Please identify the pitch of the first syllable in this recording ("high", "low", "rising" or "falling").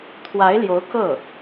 rising